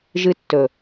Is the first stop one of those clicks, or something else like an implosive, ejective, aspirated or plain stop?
plain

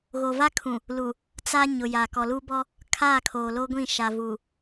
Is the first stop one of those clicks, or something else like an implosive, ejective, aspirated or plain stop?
aspirated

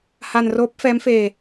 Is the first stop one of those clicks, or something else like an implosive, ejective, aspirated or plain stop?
plain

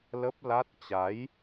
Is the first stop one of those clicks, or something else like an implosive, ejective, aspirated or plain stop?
plain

